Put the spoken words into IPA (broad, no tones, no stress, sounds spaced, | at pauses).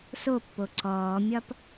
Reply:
s o pː o ǀ ɔː mʲ ɒ p